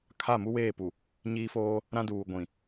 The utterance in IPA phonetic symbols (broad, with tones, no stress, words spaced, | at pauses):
kʰa˦˨mu˦weː˦˨ pu˨ | ɲiː˦foː˦ | ɾã˦duː˨ ɡʷĩ˨